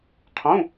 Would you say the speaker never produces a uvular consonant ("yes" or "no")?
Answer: no